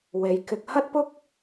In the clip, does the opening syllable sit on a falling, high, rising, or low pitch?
low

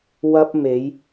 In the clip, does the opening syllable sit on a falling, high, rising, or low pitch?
high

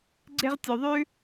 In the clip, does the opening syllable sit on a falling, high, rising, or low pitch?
high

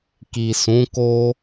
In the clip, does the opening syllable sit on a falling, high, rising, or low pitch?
low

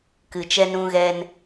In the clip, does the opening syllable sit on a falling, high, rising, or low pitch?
low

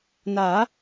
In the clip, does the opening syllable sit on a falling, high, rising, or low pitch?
rising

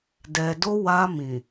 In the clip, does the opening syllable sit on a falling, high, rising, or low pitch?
low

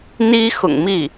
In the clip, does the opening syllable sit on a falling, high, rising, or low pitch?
high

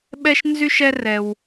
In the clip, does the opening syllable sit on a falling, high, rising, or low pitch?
high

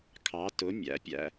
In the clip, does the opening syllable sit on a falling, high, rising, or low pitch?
rising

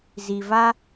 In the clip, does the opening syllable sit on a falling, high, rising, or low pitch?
low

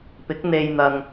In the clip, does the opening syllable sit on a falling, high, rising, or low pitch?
rising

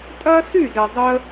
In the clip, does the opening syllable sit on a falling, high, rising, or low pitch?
high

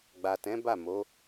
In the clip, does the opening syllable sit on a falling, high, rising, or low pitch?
low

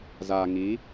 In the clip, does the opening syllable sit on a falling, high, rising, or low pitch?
low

